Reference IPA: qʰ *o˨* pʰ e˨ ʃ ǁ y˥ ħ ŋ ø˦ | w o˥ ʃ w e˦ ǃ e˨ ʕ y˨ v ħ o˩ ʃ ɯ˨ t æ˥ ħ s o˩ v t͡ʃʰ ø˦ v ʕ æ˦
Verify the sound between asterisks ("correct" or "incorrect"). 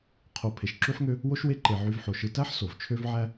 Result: correct